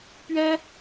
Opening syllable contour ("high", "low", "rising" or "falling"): high